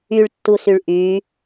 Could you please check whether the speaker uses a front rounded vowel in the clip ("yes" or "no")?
yes